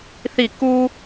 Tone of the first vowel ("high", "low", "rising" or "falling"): falling